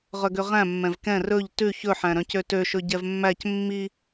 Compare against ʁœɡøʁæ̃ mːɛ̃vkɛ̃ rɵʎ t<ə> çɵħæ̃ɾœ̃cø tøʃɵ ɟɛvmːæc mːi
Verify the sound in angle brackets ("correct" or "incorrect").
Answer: incorrect